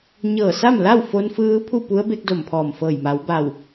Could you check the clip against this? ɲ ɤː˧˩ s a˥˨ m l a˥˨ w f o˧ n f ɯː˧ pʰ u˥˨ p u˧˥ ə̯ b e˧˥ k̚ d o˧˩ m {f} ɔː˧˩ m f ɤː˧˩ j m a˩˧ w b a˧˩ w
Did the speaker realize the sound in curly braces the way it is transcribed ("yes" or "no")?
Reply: no